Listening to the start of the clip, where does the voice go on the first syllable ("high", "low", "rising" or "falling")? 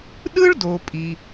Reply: high